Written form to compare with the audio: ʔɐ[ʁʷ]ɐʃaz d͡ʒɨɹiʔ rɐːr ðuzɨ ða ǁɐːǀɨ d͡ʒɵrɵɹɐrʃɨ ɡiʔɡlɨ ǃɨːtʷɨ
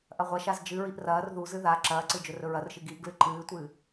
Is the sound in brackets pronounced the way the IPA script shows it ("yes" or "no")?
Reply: yes